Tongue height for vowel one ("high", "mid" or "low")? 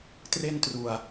mid